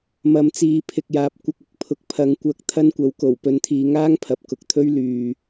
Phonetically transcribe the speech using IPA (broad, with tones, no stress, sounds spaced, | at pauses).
m ɐ˨ m t͡s iː˨ pʰ ɪ˨ k̚ j aː˨ p̚ kʷ ɐ˧ k̚ ɪ˨ k̚ pʰ ʊ˨˥ k̚ pʰ ɐ˨˧ ŋ kʷ ɐ˧ k̚ t̪ʰ ɐ˥ n kʷ ɐ˨˥ w k o˨˩ w p ɵ˨˧ n t̪ʰ iː˨ ŋ aː˥ ŋ pʰ ɐ˨ p̚ k ʊ˨ k̚ t̪ʰ ɵ˥ ɥ l yː˨